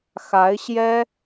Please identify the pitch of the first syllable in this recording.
rising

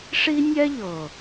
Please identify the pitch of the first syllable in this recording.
high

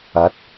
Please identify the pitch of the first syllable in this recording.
rising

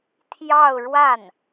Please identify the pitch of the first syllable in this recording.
falling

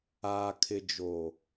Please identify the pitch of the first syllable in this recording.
low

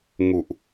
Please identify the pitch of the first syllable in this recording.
low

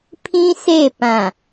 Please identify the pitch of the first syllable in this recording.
high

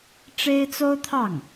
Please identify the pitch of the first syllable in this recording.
high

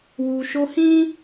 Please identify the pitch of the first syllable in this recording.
low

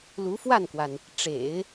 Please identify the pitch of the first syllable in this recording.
rising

